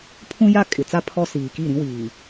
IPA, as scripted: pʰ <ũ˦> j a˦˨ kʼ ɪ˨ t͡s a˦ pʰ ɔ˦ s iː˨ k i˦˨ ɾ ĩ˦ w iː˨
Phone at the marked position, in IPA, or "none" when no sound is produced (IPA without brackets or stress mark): ũ˦